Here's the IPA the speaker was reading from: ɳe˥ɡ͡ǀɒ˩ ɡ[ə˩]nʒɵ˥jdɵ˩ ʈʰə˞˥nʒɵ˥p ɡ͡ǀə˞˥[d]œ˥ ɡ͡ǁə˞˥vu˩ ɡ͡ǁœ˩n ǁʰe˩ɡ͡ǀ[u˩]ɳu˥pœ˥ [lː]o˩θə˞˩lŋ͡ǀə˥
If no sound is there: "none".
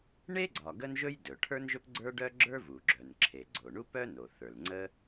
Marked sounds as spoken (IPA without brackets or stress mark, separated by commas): ə˥, ɖ, o˩, n